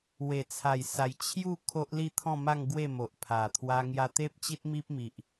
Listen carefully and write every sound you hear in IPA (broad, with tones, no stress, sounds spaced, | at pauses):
w e˨˩ t͡sʰ a˨˩ j s a˨˩ j t͡ɕʰ j u˥˧ kʰ o˦ ʔ l i˥˧ t̪ʰ ɔ̃˥˧ m a˥˧ ŋ ɡ w e˥˧ m o˨ ʔ pʰ a˨˩ t̪ʰ w a˧ ŋ j a˧ t̪ e˦ p̚ t͡ɕ i˦ t̚ m i˦ p̚ m i˨ ʔ